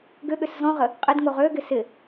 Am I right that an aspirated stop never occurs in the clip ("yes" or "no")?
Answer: yes